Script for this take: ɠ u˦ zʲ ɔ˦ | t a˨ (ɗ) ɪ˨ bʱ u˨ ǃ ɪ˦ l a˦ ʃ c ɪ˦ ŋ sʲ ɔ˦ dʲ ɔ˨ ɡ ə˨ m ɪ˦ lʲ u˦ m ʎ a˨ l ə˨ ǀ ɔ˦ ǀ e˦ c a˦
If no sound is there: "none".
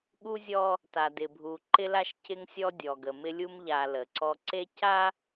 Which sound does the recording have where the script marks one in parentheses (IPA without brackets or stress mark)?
d